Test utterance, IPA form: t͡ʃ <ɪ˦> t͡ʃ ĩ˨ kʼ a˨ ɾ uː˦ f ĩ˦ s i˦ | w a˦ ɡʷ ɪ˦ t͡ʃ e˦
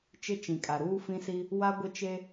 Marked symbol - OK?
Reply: yes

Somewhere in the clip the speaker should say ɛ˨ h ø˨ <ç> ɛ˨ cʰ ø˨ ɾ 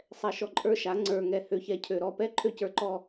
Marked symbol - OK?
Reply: yes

